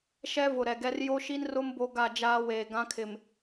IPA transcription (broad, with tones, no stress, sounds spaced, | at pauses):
ʃ ɛ˦ v ʊ˨ ɾ ɛ˨ ɡ ɛ˦ r j o˦ ʃ i˦ n r ʊ˦ m b o˦ ɡ a˦˨ d͡ʒ aː˦ w eː˨ ɡ ã˦ kʰ ɪ˨ m